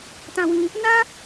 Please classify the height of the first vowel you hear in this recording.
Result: low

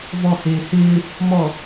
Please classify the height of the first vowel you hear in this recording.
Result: mid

